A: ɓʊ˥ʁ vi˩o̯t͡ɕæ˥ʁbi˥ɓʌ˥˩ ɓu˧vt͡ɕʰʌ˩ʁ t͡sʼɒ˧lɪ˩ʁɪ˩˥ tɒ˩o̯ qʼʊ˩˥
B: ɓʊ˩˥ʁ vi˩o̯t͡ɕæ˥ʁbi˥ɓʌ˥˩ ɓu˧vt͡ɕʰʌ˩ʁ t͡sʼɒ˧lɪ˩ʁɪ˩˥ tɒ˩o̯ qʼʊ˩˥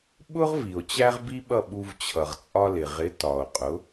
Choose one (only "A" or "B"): A